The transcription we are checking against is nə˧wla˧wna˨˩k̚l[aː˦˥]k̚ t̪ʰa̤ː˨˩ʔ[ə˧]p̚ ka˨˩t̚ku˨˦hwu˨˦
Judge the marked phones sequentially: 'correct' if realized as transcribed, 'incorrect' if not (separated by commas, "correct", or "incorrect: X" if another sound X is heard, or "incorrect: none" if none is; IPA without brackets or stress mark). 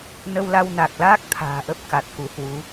correct, incorrect: ə˦˥